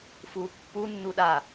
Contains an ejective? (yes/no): no